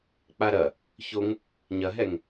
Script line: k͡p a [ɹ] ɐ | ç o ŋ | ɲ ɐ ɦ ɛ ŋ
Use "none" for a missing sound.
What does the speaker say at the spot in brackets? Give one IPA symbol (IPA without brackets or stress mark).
ɾ